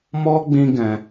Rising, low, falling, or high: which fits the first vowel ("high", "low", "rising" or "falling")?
high